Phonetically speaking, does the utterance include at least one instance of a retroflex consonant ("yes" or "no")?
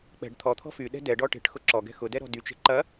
yes